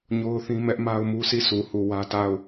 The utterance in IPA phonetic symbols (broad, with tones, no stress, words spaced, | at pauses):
ɲo˦ʊ̯θĩ˦ mɛ˦ʔ ma˦ʊ̯mu˦si˦˨ sʰu˨hu˨ wä˦ta˦˨ʊ̯